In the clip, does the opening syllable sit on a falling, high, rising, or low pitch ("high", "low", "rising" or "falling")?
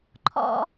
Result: low